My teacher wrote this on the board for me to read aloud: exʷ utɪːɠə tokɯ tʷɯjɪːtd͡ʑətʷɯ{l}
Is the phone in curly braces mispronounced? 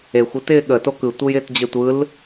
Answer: no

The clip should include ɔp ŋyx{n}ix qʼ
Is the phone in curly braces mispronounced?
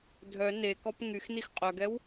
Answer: no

